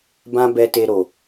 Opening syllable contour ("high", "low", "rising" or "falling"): high